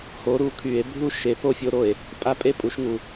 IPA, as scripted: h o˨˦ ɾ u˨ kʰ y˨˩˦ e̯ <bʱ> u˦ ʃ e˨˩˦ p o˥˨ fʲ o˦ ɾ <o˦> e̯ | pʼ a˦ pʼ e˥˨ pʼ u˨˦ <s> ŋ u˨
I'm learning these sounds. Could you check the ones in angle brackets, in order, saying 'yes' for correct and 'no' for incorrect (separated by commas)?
yes, no, no